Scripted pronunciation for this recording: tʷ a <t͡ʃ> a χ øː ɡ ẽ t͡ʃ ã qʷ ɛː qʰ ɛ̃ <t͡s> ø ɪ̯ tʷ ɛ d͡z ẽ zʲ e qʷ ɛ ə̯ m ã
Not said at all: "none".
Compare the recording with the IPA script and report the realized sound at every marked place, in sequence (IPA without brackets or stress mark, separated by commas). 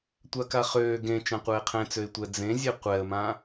k, t͡s